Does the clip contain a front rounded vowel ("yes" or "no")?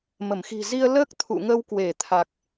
no